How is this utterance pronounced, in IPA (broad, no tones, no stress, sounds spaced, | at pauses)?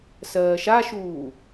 s ɜː ʃ a ʃ uː